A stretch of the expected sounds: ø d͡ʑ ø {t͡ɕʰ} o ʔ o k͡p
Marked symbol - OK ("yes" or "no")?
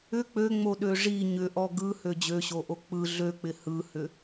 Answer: no